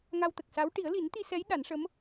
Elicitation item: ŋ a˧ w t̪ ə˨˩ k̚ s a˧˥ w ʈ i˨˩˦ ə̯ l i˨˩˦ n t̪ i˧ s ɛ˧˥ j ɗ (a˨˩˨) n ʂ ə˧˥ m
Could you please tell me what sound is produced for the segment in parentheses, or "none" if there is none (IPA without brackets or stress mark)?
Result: a˨˩˦